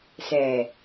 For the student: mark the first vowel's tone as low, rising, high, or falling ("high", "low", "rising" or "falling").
low